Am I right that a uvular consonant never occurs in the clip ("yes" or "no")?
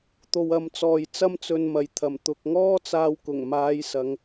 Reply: yes